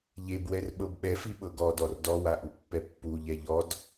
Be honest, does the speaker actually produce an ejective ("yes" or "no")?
no